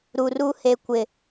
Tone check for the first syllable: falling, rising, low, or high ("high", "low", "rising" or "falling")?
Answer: low